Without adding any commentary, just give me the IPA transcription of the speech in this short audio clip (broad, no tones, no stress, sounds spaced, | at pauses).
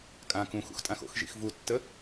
kʼ ã k ũ x ṵ x tʼ ã x o̰ x ʒ ḭ x v u tː ə